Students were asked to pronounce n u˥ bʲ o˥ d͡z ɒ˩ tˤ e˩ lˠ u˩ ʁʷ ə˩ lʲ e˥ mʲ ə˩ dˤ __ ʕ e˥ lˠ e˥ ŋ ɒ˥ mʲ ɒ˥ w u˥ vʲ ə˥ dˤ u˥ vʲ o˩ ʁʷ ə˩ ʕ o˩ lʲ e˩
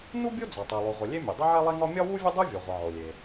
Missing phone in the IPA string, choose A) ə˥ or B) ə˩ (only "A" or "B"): A